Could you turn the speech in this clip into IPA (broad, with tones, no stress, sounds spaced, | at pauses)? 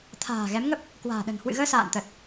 t̪ʰ a̤ː˨˩ ɣ ɛ˨˦ m ŋ ə˦˥ p̚ | k w a̤ː˨˩ ɗ ə̤˨˩ n h w ɨ̰˧˨ ɣ əː˧ s a̰ː˧˨ n t̪ ə˨˩ t̚